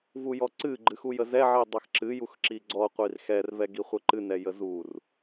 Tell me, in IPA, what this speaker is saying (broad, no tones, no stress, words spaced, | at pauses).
vujɔǀɨ ɡ͡ǃɨxujəzɛ ʕidˤɛxǁɨ juxǁiɡ͡ǀɔ qʷirxɛr vɛɡiχʷɛǃɨ nɛjəzur